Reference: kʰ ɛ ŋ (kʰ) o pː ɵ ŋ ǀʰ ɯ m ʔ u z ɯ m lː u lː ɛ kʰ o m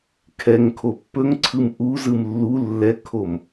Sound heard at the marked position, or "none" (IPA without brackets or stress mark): kʰ